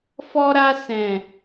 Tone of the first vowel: high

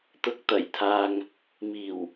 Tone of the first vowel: rising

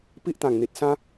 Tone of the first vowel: high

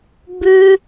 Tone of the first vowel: high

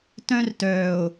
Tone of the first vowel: high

